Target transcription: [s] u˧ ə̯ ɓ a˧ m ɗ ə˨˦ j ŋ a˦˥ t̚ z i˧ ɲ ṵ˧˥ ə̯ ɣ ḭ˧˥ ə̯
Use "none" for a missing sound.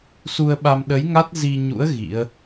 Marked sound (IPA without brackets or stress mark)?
s